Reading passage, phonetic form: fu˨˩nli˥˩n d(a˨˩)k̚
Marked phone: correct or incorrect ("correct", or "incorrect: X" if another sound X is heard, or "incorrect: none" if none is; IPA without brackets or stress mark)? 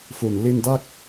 incorrect: a˥˩